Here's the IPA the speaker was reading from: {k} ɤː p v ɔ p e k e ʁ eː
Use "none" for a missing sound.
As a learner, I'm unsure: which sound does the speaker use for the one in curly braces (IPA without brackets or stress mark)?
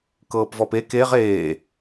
k